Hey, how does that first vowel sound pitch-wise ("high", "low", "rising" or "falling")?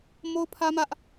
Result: high